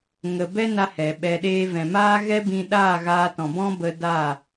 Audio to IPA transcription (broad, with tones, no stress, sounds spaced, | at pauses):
ŋ ə˧ b ɛ˦ n a˦ h ɛ˨ ɓ ɛ˧ ɗ eː˦ v ɛ̃˨ m aː˦ ɣ ɛ˦ b ĩ˧ ɗ aː˦˨ ɣ aː˧ t ɔ̃˨ b ɔ̃˦ b ə˧ d a˦˨